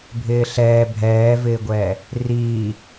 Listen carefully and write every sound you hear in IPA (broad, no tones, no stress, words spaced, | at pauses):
bʱɪːɬɛː bʱɛːvɪːɡʷɛː | riː